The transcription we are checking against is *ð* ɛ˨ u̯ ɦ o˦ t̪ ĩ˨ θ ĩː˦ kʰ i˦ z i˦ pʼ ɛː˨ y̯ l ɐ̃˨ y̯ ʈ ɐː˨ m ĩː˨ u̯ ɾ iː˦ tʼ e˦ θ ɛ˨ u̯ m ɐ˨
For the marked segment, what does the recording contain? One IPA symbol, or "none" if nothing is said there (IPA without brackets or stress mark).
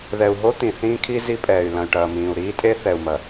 ð